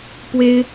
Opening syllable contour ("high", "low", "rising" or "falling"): high